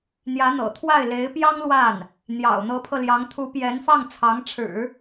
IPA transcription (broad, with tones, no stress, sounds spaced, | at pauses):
n̪ j ä˧˥ n̪ ɤ̰˨˩ t̪ʰ w a˥˩ ɪ̯ l e˧˥ ɪ̯ p j ɑ˥ ŋ l w a˥˩ n | n̪ j ɑ̰˨˩ ʊ̯ n̪ ɤ˧˥ pʰ ɤ˧ l j ɑ˧˥ ŋ t̪ʰ u˧˥ p j ɛ˧˥ n f ɑ˥˩ ŋ t͡sʰ ɑ˧˥ ŋ ʈ͡ʂʰ ɻ̩˨˩˦